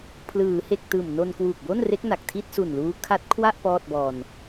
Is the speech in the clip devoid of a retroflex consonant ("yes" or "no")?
yes